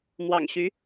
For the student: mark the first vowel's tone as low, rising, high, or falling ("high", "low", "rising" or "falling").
low